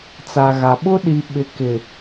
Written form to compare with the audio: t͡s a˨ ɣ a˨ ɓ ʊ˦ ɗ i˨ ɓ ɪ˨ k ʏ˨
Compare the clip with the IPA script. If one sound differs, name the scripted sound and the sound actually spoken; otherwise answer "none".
ʏ˨ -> ɪ˨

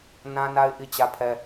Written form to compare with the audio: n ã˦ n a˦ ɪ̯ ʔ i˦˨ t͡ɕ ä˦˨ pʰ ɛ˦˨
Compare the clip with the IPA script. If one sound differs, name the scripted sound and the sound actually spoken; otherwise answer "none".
ɛ˦˨ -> ɛ˦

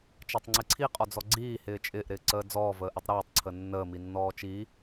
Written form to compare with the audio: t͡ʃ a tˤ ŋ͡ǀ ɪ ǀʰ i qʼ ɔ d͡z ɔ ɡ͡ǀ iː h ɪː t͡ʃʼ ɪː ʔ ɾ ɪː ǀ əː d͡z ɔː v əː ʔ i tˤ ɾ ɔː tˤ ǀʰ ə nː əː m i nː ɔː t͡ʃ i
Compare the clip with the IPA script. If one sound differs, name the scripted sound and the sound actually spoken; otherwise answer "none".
none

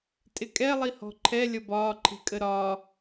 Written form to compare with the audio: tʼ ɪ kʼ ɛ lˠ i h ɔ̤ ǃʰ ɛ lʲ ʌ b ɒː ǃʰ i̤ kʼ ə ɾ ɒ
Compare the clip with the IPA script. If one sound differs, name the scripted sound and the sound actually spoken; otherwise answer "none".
none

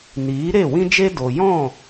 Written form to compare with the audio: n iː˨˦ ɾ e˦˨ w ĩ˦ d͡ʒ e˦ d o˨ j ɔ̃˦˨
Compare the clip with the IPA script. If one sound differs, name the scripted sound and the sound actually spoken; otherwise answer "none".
none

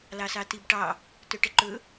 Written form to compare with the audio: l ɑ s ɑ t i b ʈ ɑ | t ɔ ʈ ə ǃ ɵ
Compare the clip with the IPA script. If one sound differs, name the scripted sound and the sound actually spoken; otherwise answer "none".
ɔ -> ɵ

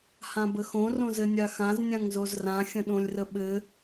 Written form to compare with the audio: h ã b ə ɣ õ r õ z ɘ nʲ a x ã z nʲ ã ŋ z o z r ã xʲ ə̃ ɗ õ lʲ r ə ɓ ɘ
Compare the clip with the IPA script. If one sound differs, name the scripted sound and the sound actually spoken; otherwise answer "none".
ɣ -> x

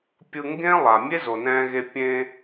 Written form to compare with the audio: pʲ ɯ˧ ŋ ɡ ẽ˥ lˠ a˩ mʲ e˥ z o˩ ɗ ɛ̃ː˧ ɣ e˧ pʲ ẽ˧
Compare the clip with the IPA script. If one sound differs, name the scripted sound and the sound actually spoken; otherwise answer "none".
ɗ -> n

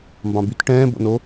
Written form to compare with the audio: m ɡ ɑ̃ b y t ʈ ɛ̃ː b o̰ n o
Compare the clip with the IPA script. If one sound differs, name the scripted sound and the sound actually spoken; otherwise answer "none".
ɡ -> b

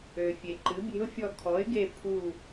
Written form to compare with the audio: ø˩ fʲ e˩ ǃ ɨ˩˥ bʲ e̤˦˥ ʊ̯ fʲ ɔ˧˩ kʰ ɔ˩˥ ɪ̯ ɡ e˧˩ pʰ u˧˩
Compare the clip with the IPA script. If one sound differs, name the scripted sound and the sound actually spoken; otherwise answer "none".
none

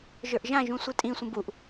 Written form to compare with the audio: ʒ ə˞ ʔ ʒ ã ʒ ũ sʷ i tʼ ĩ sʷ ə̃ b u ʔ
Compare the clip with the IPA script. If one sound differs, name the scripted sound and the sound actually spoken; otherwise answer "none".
none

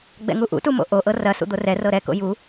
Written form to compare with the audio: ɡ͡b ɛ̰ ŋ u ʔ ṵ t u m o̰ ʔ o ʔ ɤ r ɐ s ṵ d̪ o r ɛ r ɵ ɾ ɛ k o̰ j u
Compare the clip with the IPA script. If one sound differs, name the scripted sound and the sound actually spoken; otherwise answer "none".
ɵ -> ɤ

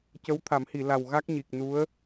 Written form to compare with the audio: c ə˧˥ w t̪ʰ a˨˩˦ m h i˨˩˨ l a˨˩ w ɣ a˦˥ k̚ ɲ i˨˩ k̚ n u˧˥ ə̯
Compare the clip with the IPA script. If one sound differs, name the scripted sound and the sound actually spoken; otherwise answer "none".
none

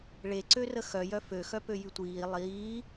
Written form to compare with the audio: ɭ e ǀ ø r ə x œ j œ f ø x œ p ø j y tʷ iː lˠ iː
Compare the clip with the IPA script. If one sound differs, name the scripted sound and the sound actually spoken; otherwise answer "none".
none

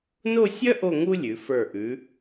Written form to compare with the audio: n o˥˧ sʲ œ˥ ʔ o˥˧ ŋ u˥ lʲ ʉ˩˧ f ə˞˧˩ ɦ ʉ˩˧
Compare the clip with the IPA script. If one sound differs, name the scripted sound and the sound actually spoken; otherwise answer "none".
ɦ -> ʔ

